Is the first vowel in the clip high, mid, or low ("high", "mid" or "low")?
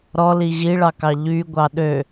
mid